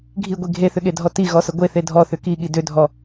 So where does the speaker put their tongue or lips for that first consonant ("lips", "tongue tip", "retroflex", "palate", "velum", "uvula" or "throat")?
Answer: velum